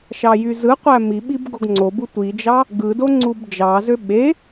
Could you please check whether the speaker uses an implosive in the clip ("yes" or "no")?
yes